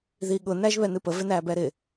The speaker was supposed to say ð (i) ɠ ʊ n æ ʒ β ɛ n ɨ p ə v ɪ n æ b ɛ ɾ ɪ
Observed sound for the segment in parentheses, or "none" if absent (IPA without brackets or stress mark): i